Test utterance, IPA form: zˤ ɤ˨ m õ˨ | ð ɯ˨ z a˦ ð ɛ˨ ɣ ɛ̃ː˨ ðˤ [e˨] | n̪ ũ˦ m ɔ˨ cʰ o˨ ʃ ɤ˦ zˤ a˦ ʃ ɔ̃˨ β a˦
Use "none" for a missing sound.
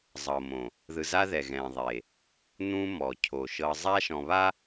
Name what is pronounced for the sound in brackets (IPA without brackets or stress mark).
e˨